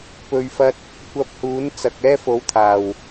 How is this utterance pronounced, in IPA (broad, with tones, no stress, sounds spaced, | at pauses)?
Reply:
p ɵ˨ ɥ f ɐ˧ t̚ | kʷ ɐ˧ p̚ h uː˨˥ n t͡s ɐ˨ k̚ ɛː˥ f o˨˥ w t̪ʰ aː˨˩ w